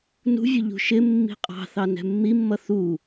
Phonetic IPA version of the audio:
n ṳ vʲ ʊ ʎ ṳ ʃ ɪ mː i̤ qʼ ɑ̤ θ ɑ n ɛ̤ mː i mː ʌ θ u

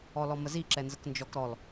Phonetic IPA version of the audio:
ɔ l ɔ m ə z i ǁ ɛ n z ə k n d͡ʒ ɔ k ɾ ɔ l

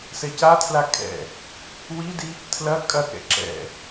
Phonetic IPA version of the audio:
s ɛ c a tʰ l a kʼ ɛ̰ | w i d i | tʰ l ɐ kʼ ɐ k ɛ̰ ǁ ɛ̰

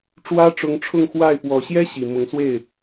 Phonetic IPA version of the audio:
ʈ͡ʂ w ä˥ ʈ͡ʂ ʊ˧˥ ŋ ʈ͡ʂʰ ʊ˥˧ ŋ x w a˥˩ ɪ̯ p w ɔ˨˩ ɕ j ɛ˥ ɕ i˨˩ m ʊ˧˥ ŋ s w e˥˩ ɪ̯

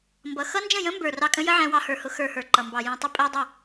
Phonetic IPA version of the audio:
m b ʌ˨ x ʌ˦ n d͡ʒ ə̃˦˨ j ə̃˦ m b ə˞˨ r ɑ˧ kʼ ə̃˦ j ə˦ ʕ æ̃˧ w ɑ˧ h ə˞˨ h ʊ˧ x ə˞˧ h ə˞˨ ǃ ʌ˨ m b ɑ˨ j æ̃˧ tˤ ɪ˦ pʼ æ˦ dˤ ə˦˨

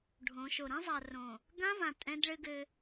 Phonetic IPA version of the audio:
ɖʱ õ˨˦ ʃ o˨ ɾ ɛ̃˦ zˤ a˨ r õ˨ | ɡ ã˦ v ã˨ tʼ ɛ̃˦ d ɭ ɘ˦ ɡ ɘ˦

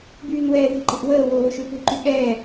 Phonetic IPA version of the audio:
b yː n w ɛː ð e̤ ǃ e̤ ʔ w əː w oː ʃ ø p e̤ ǃ y ɠ ɛː

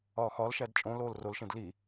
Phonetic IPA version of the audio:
ɒː x ɒ l ʃ æ d t͡ʃʼ õ l oː l r o l ʃ ẽ d l i

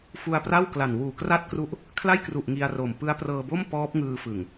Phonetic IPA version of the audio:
f u˧ a̯ p r a˥˩ w k l a˨˩ n w uː˨˩ k r a˥˩ t̚ k r u˦˥ ʔ | kʰ l a˥˩ j k r u˨˩ ʔ ŋ i˧ a̯ r o˨˩ m p ɯ˦˥ a̯ p r ɤː˧ b o˥˩ m p ɔː˦˥ p̚ ŋ ɯː˧ f ɯ˨˩ ŋ

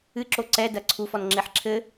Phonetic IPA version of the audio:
ɨ ǁ o ǀ ɛ d ɐ ǀʰ u f ɔ n ŋ͡ǁ e ħ ǁʰ ɘ

